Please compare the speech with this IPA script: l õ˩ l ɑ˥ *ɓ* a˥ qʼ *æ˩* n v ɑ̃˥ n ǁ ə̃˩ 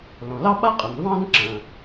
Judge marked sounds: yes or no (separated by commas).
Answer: yes, no